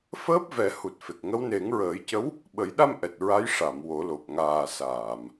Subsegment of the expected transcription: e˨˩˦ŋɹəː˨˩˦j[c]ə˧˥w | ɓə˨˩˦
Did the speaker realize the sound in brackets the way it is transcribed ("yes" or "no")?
yes